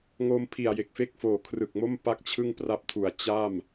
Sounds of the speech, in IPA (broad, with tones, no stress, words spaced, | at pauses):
ŋo˧m pʰi˨˩a̯je˨˩k̚fe˥˩k̚foː˨˩ kʰrɯ˨˩k̚mo˥˩m pa˥˩k̚t͡ɕʰɯ˥˩ŋpra˦˥p̚tʰu˨˩a̯ t͡ɕa˥˩m